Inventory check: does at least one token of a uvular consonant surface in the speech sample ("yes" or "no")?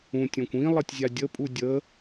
no